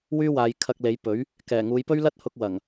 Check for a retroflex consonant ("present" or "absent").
absent